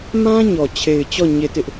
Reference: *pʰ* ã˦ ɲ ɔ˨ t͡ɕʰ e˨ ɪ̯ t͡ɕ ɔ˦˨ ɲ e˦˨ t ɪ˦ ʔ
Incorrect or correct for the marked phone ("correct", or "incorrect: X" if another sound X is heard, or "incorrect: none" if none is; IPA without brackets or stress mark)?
incorrect: m